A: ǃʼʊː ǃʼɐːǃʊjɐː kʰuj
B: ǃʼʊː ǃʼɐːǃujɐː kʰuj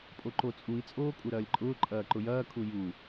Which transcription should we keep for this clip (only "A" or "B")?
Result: A